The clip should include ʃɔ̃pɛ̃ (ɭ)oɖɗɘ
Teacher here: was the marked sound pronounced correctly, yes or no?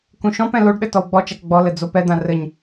no